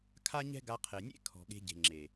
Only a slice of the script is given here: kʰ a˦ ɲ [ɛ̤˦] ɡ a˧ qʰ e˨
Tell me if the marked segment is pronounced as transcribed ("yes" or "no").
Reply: yes